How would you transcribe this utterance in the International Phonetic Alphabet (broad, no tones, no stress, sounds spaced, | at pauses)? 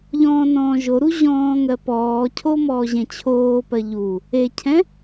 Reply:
ʎ ɔ̃ː n ɔ̃ː ʒ o ɾ u ʑ ɔ̃ː ŋ ɜ p ɔː cʰ o m ɔː ʑ ɛ̃ t͡ɕʰ oː p ɜ ʎ u | e cʰ ɛ̃